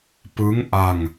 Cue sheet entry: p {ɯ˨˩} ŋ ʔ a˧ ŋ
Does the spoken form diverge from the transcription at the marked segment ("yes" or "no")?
yes